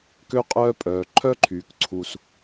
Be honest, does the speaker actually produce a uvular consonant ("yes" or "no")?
yes